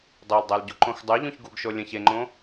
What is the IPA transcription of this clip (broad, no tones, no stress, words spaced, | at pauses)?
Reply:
dˤoldˤal ɟuǃõxdˤuʎũç ɡuɡʃo lʲə̃ç eŋ͡ǃõ